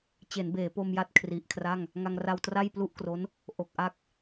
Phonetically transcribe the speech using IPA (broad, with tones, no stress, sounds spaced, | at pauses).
t͡ɕ e˩˦ n b eː˩˦ p o˧ m j a˦˥ t̚ kʰ r i˨˩ ʔ kʰ r a˥˩ ŋ | ŋ a˧ ŋ r a˧ w t r a˥˩ j p l u˥˩ ʔ k r o˦˥ n | ʔ o˨˩ k̚ ʔ a˥˩ k̚